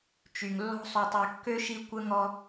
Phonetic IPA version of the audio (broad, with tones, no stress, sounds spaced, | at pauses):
t͡ʃ y˩ ŋ lː ɔ̤˦ sˤ o˨ tˤ œ˨ kː ø˥ ʃ i˦ kʷ ə˥ ŋ ɔ˥